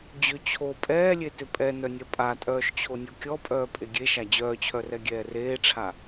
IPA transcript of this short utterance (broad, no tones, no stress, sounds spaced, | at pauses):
d͡ʑ ʏ t͡ɕʰ o pʼ ɛː lʲ e t ʏ pʼ ɛ n œ nʲ œ pʼ a tʼ œː ʃ t͡ɕʰ o nʲ o kʲ ɔ pʼ œː pʼ e ɡʲ e ʃ a d͡ʑ œː t͡ɕʰ œ r ɛ ɡʲ ɛː r eː ʈ͡ʂʰ a